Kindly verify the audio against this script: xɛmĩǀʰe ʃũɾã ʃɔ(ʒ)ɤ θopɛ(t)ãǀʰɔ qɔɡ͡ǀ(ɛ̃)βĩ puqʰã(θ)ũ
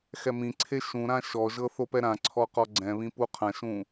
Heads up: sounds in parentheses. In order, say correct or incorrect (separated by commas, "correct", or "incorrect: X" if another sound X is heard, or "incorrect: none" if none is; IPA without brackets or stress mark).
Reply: correct, incorrect: ɾ, correct, incorrect: ʃ